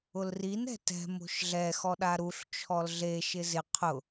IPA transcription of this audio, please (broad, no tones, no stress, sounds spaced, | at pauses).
ʊ l r i n ɛ̤ t ɛ̤ m o̤ ʃ ɮ ɛ x ɔ ɗ a ɾ u ɬ t͡ʃʰ ɔ l ɮ e ʃ ɪ z ɪ qʰ ʊ